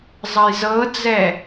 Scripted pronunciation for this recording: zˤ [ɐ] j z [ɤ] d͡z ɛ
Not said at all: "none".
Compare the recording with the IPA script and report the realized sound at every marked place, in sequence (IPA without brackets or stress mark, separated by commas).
ɐ, ɤ